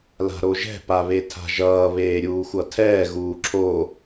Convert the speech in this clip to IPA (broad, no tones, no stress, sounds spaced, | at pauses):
l a̤ ɾ o ʒ ɛ̤ p a β e tʰ a̤ ʒ ʌː β eː ɾʲ uː xʷ ʌ tʰ ɛː ɣ uː ǁʰ o